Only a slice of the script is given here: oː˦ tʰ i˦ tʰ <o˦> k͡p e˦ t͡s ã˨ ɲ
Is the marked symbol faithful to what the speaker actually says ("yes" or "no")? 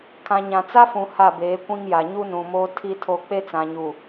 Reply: no